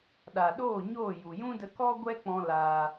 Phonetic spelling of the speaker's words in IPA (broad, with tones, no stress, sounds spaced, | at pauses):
ɗ a˨ ɗ oː˦˨ ɲ oː˦˨ j u˨ j ũ˦ d ə˧ k ɔ˦ ɡʷ ɛ˦ k͡p ɔ̃˧ l aː˧